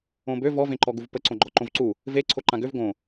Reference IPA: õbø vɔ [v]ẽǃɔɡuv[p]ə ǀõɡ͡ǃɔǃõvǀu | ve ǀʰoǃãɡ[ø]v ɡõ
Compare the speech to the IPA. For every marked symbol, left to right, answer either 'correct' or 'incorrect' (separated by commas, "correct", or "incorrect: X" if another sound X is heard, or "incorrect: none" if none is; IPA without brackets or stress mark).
correct, correct, correct